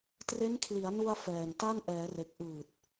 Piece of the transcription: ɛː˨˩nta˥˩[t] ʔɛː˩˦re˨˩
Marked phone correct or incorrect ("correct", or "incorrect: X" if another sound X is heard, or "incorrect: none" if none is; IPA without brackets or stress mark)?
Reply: incorrect: n